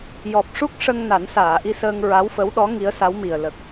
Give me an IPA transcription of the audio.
j ɔ˨˩ p̚ ʂ u˦˥ k̚ ʂ ə˧ ŋ n a˨˩˦ n s aː˨˩˨ ʔ i˧ s əː˧ ŋ ɹ a˧˥ w f ə˧˥ w ɗ ɔ˧˥ ŋ i˧˥ ə̯ s a˧˥ w m i˨˩ ə̯ l ə˨˩ k̚

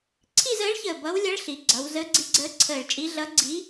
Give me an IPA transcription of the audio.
ǀʰ i˥˧ z əː˧˥ ɭ ç əː˧˩ b ʌ˧˥ w lʲ ʌ˧˥ ɭ ɬ i˩˧ ɡ͡ǀ ʌ˩˧ w z ə˧˥ ɡ͡ǀ i˧˥ ɡ͡ǀ əː˧˥ ǀʰ əː˧˩ ɭ t͡ʃʼ i˧˥ ɮ ʌ˧˥ ɡ͡ǀ i˧˥

